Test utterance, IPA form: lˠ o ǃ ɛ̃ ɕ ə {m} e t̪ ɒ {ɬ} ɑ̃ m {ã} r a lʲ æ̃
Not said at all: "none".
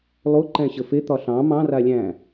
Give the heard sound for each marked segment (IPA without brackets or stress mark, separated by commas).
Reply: f, ɬ, ɑ̃